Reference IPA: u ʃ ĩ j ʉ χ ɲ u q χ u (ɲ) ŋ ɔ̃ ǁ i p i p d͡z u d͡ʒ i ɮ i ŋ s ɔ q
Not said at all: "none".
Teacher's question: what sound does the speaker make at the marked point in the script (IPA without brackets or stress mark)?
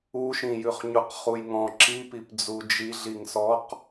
j